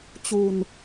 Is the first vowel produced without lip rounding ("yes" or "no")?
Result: no